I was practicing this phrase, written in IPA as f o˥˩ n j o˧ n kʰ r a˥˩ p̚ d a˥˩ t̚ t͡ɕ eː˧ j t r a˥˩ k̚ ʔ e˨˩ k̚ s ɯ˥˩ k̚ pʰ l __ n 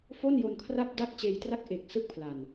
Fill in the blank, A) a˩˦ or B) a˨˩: B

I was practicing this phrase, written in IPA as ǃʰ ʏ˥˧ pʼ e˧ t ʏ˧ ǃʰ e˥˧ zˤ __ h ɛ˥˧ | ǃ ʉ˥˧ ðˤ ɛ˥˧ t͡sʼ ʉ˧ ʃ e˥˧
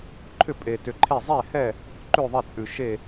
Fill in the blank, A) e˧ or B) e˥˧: B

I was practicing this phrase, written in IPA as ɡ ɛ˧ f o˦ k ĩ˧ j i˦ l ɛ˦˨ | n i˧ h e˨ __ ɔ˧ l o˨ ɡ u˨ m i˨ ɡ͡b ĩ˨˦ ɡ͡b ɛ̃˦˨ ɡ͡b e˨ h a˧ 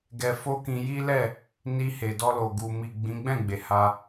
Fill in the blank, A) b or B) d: B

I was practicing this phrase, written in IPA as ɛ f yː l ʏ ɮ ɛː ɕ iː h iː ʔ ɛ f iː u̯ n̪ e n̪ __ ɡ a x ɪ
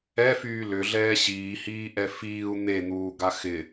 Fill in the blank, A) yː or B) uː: B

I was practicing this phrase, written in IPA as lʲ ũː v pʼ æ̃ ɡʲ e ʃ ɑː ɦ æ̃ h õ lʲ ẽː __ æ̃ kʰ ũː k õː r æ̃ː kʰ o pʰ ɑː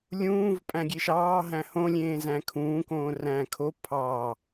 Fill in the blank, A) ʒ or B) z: B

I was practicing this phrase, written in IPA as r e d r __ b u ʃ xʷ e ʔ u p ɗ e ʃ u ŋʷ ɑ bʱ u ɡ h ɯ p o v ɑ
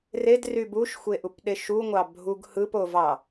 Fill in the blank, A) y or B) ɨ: A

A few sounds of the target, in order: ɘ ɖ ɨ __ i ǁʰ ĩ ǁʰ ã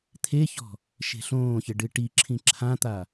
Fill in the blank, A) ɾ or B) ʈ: B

